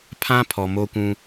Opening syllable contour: high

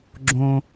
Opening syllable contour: high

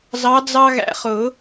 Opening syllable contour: rising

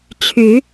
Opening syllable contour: rising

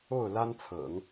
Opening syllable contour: falling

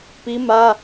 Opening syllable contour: high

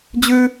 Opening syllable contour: high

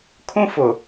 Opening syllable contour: high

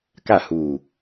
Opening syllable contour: falling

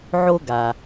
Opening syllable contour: high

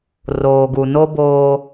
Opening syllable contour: low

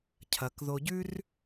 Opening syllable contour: low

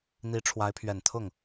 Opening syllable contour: rising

